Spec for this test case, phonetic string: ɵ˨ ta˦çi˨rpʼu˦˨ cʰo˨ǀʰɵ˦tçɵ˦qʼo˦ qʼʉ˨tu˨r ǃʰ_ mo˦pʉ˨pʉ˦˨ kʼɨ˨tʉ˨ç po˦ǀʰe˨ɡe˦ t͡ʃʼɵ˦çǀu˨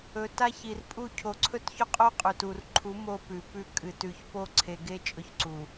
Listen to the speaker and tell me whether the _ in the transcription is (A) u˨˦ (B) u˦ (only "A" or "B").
A